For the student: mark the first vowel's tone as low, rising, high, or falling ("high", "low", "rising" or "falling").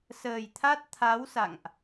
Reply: low